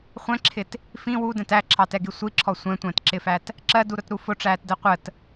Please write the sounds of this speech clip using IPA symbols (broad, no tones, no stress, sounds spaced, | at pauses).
χʷ ɛ̃ ǁʰ ɪ t | f ĩ w u d ɛ̃ t æ ǁʰ ɑ t ɛ ɡ i sʷ i ǁʰ ɔ sʷ ɛ̃ tʷ æ̃ t ǁ ɪ f æ t | ǁ ɜ d u ɾ ʊ t ɾ u f ʊ ʈ͡ʂ æː t d ɛ qʷ ə t